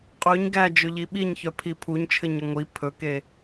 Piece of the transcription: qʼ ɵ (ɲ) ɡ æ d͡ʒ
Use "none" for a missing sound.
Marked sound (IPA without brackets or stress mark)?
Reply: ɲ